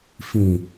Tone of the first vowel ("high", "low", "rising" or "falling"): low